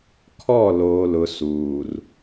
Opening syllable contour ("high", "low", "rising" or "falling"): falling